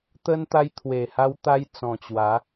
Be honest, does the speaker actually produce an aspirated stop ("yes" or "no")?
yes